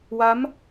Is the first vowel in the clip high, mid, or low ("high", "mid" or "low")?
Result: low